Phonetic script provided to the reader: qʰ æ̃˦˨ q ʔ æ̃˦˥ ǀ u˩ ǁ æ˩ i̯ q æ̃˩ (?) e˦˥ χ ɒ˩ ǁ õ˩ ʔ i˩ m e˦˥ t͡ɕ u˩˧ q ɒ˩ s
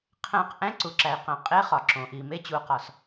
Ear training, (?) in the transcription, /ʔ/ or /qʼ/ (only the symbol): qʼ